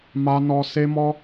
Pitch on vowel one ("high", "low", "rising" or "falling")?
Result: high